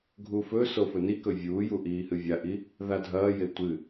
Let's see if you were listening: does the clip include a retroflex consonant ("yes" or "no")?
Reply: no